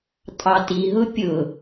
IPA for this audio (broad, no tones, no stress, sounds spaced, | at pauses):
tʼ ɑ t i ɦ ʊ pʲ ʊ